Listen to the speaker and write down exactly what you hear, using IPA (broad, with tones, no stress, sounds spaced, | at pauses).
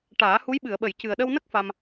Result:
ʈ aː˨˩˦ h u˧˥ j ɓ ɨ˨˩˨ ə̯ ɓ ə˨˩˨ j c ɨ˨˩ ə̯ ɗ ə˧ w n ə˦˥ k̚ f a˧ m